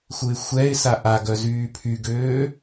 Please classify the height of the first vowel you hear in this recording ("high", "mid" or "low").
high